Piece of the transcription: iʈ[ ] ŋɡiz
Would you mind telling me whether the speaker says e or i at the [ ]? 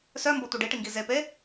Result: i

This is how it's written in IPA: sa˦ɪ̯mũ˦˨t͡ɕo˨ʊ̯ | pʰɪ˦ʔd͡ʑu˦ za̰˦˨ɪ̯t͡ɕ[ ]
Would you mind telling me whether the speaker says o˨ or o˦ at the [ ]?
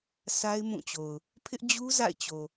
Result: o˨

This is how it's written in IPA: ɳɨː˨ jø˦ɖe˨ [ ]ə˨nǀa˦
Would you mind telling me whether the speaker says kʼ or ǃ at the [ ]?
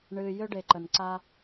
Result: ǃ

